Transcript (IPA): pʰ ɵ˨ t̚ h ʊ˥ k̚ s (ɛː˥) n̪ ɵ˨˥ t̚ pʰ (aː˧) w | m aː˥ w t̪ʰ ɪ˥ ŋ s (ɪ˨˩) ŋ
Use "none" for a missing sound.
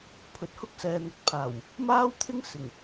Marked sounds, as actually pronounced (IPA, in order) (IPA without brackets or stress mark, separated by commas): ɛː˨, aː˨˩, ɪ˨˩